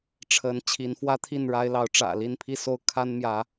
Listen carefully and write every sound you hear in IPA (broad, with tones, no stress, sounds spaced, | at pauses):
ʈ͡ʂʰ ə˨˦ n t͡ɕʰ i˨˦ n f w ä˦ t̪ʰ i˥˨ n ɻ a˦ ɪ̯ l ɑ˨˦ ʊ̯ ʈ͡ʂ ä̰˨˩ l i˥˨ n pʰ i˥˨ s o˦ ʊ̯ kʰ a˦ n m j ä˨˦